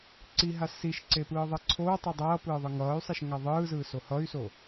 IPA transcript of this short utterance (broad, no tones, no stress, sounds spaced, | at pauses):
ǀ i ɦ a s i ʃ ǀ e p ɯː ðˤ e ǀʰ oː tˤ i dˤ ʌː p ɯː ðˤ ɯ ŋ ʌː y̯ sˤ e ʃ ŋ a ðˤ ɯː z ɯː s o h ʌ y̯ s o